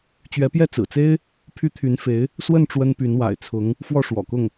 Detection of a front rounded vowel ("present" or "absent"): present